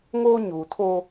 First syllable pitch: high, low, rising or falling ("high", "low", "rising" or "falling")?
high